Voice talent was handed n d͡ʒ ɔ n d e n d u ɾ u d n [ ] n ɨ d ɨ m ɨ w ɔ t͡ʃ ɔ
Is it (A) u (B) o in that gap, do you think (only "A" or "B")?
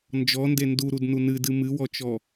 A